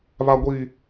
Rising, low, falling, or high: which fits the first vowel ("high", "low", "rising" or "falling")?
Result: high